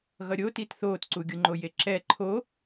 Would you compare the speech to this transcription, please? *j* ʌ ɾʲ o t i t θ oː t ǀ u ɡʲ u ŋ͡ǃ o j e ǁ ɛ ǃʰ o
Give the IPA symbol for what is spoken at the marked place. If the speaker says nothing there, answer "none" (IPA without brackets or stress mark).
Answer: ɣ